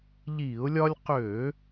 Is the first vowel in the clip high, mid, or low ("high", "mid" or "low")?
high